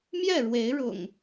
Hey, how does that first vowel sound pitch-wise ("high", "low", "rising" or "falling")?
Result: falling